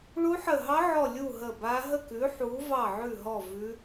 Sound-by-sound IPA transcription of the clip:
ɭu˦˥ħə˦˨ ɦɑ˦˥ʕɔ˦˨lʲu˦˨ ɦə˦˨ba˦˥ ɦə˦˨kʉ˨˦ ħu˨˦vɑ˦˨ʕʉ˦˨ɦɔ˦˨ vʉ˦˥

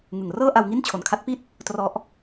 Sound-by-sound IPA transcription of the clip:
ŋɯ˨˩ŋrɤː˥˩ʔa˧wŋi˥˩n t͡ɕʰo˨˩nkʰa˦˥t̚pi˥˩t̚ | trɔ˦˥ʔ

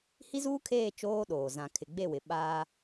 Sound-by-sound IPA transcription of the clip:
hi˦zuː˦kʰeː˦˨ t͡ʃoː˦ɗoː˨ zã˨kʰɪ˨ɡ͡be˦˨wɪ˨ ɓa˦

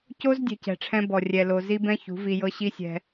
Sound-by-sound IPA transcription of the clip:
co˦z dʲɛ̤˧cɛ̤˨ʈ͡ʂʰɛ̃˦ bɔ˨ rʲɛ˨lo˨ zi˦bɛ̃˦çṳ˨˦ vi˧jɤ˦ ɕi˦sʲɛ̤˧

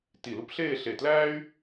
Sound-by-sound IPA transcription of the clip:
ti˧˩lu˥p ɬeː˥˧ɬe˧˩ tlæː˥y̯

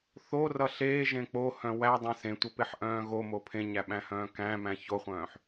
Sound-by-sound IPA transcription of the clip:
θorʌ ɬeːʒẽ k͡pohœ̃ wædˤẽ sẽtʷʌpeħʔœ̃ː ɣomo pʰẽɲæɓæ̃hœ̃ː kæ̃mæ̃ çoχʷœ̃ːħ

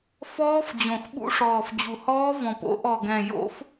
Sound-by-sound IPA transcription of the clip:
fɔː˦˥fd͡ʑõ˨˩x ɓṵ˦˥ʂɔː˨˩f d͡ʑu˨˩hɔː˦˥ vɔ̃˨˩p o̰˦˥ʔɔ˨˩ɡɛ̃˨˩ jo̰˦˥f

